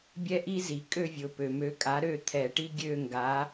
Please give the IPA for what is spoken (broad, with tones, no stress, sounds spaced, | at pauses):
bʲ ɛ˥ ʔ i˥ z i˩ kʼ ø˥˧ vʲ ʊ˩ p ø˩ m ø˨˥ kʼ a˨˥ ɾ ø˥˧ t̪ʰ ɛ˨˩˦ ʈ i˥ ɡʲ ø˥˧ ŋ ɡ a˨˥